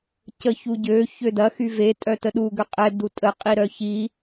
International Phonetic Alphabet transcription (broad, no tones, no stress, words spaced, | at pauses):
cəçuɟø çødɐ xyve tʼœtəɗu ɡøqʼɛ dutʼə qʼiɾœçi